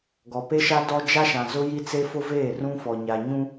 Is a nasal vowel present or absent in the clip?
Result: present